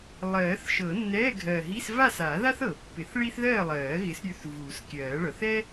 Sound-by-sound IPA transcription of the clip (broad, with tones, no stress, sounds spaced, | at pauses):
lˠ ɜː˨˩˦ θ ʃ ɤ˨˩˦ nː ɛː˧˥˧ ɡʱ ɜ˨˩ ɦ i˧˥˧ s v a˥˨ s a˨˩˦ ð a˥ θ ɤ˨˩˦ pː ɪ˨˩˦ θ ɭ i˥ θ ð ɜː˥˨ lˠ ɜː˨˩˦ ɣ ɪ˨˦ s ɾʲ ʉ˨˦ θ v uː˨˩˦ s kʲ ɜː˨˩˦ ɭ ɤ˨˩ θ ɛ˥